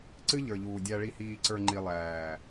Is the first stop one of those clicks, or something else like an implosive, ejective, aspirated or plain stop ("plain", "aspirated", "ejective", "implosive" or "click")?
click